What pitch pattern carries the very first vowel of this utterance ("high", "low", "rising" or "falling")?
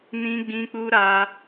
high